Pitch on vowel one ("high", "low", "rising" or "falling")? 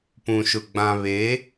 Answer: low